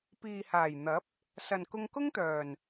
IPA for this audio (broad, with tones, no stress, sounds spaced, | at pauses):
p iː˨ h aː˨˩ j n̪ ɐ˨˥ p̚ | s ɐ˨ n k ʊ˧ ŋ k ʊ˥ ŋ t̪ œː˨˩ n